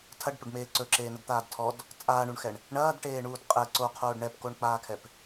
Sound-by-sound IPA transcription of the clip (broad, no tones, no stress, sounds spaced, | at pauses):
tʰ ɐ ɖ p ɵ ɖ m eː ǀ ɵ ǁ eː n ɐ d t̪ aː d tʰ ɔ d | t͡sʼ aː ɳ u ɳ x ɛ ɳ | ɳ ɐː d ʈ eː ɳ uː d qʼ ɛ ǀ o qʰ oː ɖ ɳ ɛ p k o ɳ k͡p aː kʰ ɛ p